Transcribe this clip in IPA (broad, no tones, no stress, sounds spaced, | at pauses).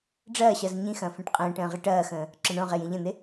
ɖ͡ʐ ɐː ɕ ɐ z ɲ ĩ x ɐ̃ː f ɛ̃ ʈ qʼ ə̃ː ʈ ə̃ː ʁ i ʈ ɐː x ə̃ː | ǁ ɐ ɳ õ ʁ e j ĩ ʎ ə̃ n̪ e